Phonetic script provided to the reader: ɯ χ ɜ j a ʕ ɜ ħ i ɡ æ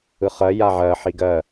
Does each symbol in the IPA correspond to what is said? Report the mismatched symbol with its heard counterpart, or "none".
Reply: æ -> ɜ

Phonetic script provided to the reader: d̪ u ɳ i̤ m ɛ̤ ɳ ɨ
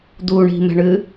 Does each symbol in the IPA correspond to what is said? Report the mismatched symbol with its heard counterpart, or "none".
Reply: none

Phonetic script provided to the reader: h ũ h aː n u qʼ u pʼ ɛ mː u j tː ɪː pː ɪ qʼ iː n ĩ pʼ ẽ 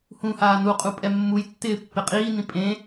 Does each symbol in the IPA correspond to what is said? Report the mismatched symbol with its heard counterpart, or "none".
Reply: none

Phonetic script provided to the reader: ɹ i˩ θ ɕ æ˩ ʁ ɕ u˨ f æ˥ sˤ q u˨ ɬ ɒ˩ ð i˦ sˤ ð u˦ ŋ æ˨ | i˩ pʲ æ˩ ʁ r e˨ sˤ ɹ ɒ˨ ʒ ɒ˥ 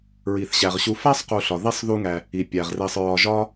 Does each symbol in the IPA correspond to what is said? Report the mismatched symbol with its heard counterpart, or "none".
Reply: none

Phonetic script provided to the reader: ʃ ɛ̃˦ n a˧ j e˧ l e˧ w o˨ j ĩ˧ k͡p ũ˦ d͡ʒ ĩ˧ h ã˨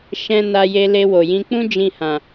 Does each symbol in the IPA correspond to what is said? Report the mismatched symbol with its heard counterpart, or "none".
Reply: none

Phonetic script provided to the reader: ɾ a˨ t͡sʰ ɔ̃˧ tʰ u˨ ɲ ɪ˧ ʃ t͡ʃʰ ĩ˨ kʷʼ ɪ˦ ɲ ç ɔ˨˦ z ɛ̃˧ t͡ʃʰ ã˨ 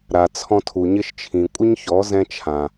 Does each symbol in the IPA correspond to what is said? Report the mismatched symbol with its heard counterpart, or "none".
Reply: none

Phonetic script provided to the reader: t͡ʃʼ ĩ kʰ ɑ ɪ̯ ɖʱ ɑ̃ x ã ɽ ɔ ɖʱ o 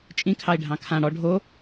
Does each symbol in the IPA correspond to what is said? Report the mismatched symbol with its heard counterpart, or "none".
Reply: x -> kʰ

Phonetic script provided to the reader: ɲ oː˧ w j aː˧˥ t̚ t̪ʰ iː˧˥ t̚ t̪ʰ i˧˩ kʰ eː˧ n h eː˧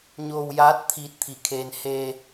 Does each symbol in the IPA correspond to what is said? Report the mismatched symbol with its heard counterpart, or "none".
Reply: none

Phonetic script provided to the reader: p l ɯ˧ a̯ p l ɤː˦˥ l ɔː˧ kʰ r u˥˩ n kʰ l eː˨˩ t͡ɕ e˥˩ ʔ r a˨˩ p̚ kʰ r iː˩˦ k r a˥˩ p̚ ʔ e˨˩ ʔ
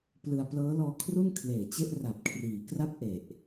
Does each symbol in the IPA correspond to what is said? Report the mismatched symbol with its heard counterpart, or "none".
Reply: none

